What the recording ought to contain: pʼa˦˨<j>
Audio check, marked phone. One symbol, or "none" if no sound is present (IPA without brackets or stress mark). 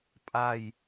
j